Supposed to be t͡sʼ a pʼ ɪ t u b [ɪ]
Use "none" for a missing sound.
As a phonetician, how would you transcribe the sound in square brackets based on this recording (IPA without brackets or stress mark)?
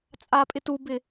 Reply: ɪ